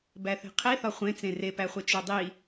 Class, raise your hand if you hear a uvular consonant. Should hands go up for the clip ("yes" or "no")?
yes